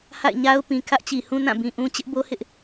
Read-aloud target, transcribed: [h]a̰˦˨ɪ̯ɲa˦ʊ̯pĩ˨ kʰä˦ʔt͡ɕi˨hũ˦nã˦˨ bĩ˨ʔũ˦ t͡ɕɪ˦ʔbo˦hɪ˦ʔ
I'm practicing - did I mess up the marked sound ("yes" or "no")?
no